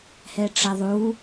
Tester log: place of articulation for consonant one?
glottal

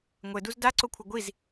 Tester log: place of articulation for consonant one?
velar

